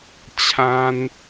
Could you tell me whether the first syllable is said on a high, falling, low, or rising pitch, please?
high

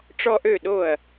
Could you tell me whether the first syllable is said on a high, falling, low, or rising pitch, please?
high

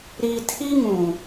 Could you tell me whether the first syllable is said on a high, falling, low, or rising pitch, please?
low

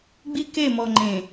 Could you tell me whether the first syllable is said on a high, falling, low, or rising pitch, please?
high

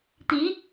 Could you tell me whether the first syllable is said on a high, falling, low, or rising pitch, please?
rising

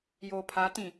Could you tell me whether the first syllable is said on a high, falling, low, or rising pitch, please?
low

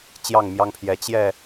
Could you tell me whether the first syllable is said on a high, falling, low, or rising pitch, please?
falling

